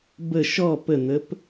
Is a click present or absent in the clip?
absent